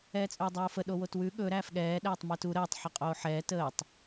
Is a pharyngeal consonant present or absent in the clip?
present